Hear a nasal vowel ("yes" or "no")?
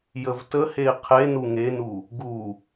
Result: no